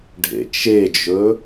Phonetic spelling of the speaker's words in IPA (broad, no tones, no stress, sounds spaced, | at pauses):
ɖʱ ḛ t͡ʃ e d͡ʒ ɵ